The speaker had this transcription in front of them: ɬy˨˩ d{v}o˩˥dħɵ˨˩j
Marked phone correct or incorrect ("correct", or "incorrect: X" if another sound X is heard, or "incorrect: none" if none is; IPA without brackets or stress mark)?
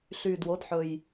incorrect: w